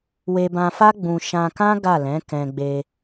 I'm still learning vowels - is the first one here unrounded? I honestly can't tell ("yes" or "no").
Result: yes